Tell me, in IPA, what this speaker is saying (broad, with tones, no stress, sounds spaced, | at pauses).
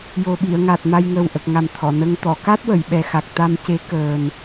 j o˨˩ ɓ i˨˩˨ ə̯ ŋ a˨˩ t̚ m a˧ j ŋ əː˨˩ w ʔ ə˨˩ k̚ ŋ a˨˩ m t̪ʰ ɔ˨˩˨ n ə˧ ŋ t̪ ɔ˨˩˨ k a˦˥ t̚ w ə˨˩˨ j ɓ ɛ˨˩ x a˨˩ k̚ t̪ a˧ m c e˧˥ k əː˨˩ n